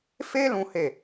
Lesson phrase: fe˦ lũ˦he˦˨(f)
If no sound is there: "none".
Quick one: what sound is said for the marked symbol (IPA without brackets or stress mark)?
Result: none